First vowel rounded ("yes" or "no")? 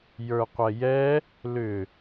no